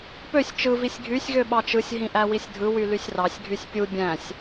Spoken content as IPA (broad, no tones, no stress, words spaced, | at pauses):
pøsʲ t͡ʃɯ visʲɡʱysʲ ɣøɓɑt͡ʃɯsʲ ɦĩʔæwisʲdʱɯ wylysʲrɑsʲ ɡʱysʲpʲu bʲæ̃sʲ